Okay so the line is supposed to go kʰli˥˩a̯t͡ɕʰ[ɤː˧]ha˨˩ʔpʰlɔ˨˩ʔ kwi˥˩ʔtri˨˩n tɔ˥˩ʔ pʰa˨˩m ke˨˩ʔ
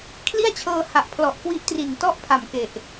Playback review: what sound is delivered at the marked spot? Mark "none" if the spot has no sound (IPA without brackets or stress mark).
ɤː˧